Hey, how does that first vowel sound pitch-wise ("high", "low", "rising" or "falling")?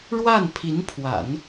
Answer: falling